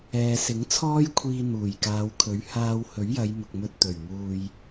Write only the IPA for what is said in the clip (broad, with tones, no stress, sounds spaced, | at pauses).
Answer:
ɛː˨ s ɪ˨˥ ŋ t͡sʰ ɔː˥ j kʷʰ iː˧ n̪ uː˨˩ j k aː˨˧ w kʰ ɵ˨˥ ɥ h aː˧ w h ɵ˨˥ ɥ j ɐ˨˧ j m ʊ˨ k̚ m ɵ˧ t̚ t̪ ɵ˨˩ ɥ m uː˧ j